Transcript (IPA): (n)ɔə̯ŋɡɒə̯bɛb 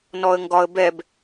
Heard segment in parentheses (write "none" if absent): n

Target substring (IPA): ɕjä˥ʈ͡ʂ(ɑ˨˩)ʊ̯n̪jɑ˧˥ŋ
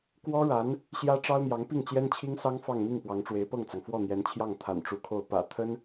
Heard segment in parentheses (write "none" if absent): ɑ˥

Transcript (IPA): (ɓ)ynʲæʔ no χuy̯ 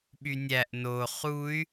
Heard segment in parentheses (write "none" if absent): ɓ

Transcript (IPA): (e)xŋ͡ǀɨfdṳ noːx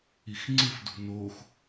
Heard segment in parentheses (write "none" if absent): i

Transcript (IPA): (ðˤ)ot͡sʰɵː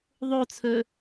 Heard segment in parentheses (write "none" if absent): ðˤ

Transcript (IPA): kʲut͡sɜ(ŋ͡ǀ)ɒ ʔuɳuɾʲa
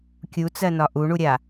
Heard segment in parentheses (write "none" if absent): n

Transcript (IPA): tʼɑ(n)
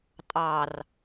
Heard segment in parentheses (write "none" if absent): r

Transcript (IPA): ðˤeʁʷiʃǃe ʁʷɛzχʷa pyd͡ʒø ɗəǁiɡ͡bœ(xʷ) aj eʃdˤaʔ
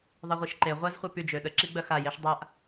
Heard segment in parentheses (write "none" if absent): x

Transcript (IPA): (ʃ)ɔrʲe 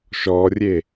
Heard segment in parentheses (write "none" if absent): ʃ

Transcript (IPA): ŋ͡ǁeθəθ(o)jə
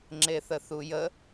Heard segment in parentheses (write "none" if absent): u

